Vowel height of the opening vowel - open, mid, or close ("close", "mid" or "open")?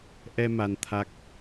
mid